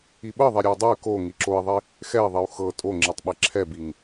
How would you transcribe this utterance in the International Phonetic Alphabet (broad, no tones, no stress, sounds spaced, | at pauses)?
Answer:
i ɓ ɤ ðˤ ɛ ɾʲ ɤ u̯ dˤ ɛ y̯ k o ŋ i ǁ o i̯ ðˤ i | x ɛ i̯ ðˤ i u̯ x ɤ tʼ o ŋ͡ǁ i tˤ ɓ ɛ ǁʰ ɛ b i ŋ